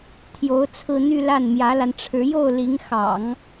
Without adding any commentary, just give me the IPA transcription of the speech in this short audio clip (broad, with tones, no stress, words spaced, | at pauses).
t̪ʰjo˧˥ʊ̯t͡sʰɹ̩˥˧n̪y˥˧la˥˩n mjä˧˥la˧nʈ͡ʂʰɻ̩˧˥ jo˥˩ʊ̯ li˧˥ŋ xɑ̰˨˩˦ŋ